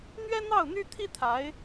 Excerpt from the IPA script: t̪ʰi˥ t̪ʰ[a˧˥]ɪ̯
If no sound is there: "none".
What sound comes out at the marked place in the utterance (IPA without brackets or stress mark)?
a˧˥